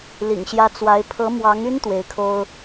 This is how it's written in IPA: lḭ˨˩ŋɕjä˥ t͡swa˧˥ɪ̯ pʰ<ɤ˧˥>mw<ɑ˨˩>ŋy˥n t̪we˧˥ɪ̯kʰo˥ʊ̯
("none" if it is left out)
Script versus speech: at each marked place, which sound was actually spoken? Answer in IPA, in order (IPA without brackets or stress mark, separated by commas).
ɤ˧˥, ɑ˧˥